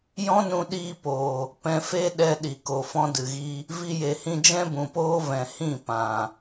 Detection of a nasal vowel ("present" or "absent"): present